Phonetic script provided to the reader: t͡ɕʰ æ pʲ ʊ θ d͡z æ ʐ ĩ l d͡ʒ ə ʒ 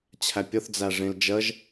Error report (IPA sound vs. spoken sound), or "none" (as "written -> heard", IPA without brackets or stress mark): none